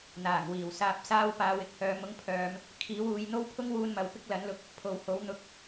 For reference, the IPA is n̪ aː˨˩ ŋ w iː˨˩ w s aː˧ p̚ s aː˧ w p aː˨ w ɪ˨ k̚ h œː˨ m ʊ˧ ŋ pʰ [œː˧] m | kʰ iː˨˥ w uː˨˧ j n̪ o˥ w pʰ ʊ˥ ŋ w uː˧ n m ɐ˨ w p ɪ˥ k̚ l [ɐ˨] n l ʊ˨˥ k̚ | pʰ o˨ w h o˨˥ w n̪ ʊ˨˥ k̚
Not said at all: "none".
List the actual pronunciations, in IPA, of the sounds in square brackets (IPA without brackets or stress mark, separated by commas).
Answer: œː˨, ɐ˨˥